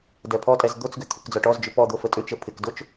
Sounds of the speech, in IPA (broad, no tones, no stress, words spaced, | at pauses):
dɛpʰɔtʼɛz d̪ot͡sɡʏ t̪ʰʏkd͡zɔʈɔzd͡ʒʏ pɔd̪o fətʼʏt͡ʃə pʰɪkdot͡ʃ